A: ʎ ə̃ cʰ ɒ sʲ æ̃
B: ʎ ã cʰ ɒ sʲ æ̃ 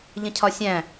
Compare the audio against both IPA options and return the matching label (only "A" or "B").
A